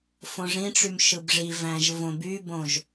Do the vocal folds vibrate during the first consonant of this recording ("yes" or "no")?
no